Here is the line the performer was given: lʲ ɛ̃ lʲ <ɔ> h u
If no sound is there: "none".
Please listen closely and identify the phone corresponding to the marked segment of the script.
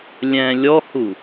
ɔ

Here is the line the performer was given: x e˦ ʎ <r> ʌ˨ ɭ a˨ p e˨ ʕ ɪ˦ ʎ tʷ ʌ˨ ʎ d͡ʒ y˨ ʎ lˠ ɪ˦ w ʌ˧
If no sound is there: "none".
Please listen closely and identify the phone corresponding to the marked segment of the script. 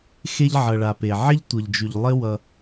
ʕ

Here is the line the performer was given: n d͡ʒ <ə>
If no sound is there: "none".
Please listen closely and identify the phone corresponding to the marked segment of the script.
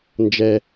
ɛ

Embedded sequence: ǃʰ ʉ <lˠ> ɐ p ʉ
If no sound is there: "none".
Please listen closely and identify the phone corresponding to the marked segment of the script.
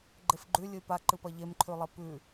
lˠ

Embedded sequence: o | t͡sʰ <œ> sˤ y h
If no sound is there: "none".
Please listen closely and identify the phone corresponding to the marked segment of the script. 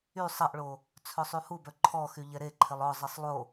œ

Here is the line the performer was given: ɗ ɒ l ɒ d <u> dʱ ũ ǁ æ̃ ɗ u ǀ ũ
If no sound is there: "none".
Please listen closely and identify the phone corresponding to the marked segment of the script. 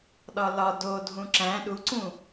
o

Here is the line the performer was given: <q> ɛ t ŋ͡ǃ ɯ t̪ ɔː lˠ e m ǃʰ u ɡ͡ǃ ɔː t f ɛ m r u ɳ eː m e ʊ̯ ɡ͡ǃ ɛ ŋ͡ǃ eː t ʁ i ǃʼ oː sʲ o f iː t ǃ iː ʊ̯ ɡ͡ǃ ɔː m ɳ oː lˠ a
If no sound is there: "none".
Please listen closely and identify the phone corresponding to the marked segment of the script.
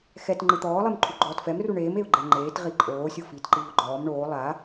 x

